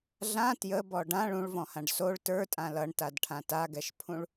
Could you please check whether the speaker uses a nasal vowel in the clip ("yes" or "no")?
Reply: yes